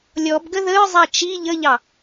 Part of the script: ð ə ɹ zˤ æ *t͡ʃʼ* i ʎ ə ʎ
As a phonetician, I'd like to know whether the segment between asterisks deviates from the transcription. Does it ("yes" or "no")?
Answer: yes